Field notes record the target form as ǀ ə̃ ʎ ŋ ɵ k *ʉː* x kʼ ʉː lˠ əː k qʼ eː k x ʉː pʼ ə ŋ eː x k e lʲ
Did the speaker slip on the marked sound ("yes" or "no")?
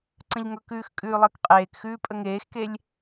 no